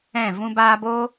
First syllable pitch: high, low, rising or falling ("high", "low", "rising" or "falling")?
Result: falling